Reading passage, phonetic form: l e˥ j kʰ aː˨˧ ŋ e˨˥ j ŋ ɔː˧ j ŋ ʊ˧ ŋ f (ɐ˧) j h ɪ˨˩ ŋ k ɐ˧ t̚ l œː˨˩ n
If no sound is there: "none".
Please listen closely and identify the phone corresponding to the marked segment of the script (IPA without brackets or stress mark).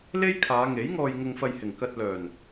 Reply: ɐ˧